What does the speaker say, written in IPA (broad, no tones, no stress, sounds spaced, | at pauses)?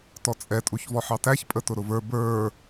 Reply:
t ɔ t͡sʼ ɛ tʼ u ç v ɔ ħ ɑ t æ ç pʼ ə t ʊ ɾ ʊ v ə˞ b ə˞